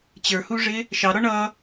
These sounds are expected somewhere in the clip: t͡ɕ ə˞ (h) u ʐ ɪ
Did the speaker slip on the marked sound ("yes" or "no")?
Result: no